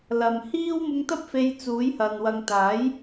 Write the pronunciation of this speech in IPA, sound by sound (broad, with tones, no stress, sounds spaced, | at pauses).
l ɐ˨ m h iː˥ w m ʊ˧ ŋ t̪ ɐ˥ p̚ f e˧ j t͡s uː˨˥ j h ɐ˨ n w ɐ˨ ŋ t̪ aː˨˥ j